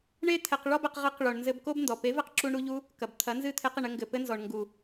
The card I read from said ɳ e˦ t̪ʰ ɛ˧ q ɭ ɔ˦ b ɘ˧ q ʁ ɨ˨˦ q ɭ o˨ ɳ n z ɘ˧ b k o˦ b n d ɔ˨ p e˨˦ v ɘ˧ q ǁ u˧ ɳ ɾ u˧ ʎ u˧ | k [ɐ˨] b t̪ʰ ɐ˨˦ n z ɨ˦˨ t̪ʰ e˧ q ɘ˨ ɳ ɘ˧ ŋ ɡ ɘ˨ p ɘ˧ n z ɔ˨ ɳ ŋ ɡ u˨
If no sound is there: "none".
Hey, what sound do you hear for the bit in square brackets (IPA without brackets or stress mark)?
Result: ɐ˨